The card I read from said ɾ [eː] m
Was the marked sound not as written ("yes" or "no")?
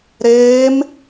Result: no